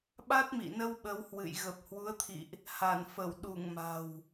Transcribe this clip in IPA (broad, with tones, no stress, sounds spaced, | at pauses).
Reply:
ɓ a˦˥ t̚ m ḭ˧˨ n ə˧ w ɓ ə˨˦ w h w ɨ̰˧˨ j ɣ ə˨˩ p̚ h w u˨˦ ə̯ t̪ʰ ḭ˧˨ ʔ | h a˧˩ n f ə˧˩ w ɗ u˧˩ ŋ m a̤˨˩ w